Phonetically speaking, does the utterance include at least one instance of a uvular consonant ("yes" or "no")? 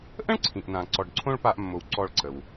no